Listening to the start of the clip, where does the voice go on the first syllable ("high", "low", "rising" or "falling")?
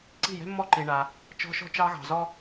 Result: falling